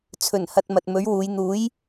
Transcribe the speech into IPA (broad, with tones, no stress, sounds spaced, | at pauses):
t͡sʰ ɵ˨˩ n h ɐ˧ t̚ m ɐ˨ t̚ m ɵ˨˥ ɥ w uː˨˧ j n̪ uː˨˥ j